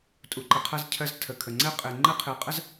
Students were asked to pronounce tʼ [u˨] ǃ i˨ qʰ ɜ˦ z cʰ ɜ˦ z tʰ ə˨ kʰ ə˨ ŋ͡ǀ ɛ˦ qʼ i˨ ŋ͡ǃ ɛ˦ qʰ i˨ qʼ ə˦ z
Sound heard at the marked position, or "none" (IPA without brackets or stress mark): u˨